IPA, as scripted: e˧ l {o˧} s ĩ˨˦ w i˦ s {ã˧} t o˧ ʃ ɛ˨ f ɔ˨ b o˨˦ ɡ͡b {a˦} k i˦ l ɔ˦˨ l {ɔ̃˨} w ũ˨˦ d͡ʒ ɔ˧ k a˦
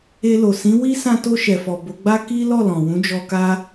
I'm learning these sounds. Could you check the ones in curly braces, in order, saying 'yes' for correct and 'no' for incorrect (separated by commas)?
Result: no, yes, yes, yes